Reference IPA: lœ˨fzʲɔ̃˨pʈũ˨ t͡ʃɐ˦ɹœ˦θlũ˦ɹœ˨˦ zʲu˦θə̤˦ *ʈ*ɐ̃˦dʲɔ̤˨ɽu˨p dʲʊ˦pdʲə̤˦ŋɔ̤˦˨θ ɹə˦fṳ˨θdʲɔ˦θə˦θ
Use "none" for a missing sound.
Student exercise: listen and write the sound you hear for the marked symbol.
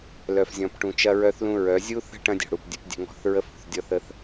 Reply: ʈ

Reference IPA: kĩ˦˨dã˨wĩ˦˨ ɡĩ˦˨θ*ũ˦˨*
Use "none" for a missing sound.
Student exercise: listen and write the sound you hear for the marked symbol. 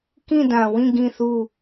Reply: u˦˨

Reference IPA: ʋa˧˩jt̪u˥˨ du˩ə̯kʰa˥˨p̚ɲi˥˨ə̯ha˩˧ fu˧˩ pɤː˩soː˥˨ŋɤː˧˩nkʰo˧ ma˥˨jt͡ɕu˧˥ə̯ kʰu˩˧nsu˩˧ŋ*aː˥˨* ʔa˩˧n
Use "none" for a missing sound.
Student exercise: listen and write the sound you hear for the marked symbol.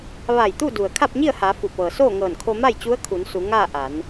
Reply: aː˥˨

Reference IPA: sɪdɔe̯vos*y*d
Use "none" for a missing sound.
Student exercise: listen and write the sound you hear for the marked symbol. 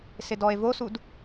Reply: u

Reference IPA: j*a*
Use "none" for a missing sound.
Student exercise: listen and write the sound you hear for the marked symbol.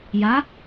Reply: a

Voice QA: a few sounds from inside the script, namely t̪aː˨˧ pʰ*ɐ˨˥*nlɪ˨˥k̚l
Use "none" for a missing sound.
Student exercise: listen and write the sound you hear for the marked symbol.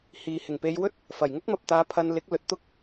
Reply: ɐ˧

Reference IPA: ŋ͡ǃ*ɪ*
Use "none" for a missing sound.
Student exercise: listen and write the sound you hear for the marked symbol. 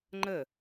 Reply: ə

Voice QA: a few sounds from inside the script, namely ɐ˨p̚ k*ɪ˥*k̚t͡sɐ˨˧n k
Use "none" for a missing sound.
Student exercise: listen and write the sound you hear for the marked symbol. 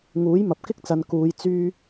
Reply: ɪ˥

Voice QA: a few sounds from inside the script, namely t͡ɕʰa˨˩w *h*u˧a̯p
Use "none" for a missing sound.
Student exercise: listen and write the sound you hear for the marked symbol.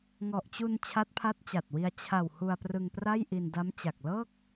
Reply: h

